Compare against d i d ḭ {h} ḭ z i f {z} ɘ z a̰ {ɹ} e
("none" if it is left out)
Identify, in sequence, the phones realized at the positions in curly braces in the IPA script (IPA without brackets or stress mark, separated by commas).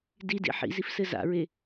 ħ, s, ɹ